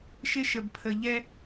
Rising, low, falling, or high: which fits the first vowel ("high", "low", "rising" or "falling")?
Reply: high